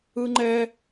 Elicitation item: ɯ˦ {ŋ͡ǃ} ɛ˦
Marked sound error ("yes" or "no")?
no